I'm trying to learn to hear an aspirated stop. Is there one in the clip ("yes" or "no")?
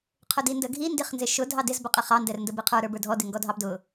yes